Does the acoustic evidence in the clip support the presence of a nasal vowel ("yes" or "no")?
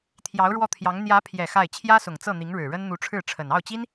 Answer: no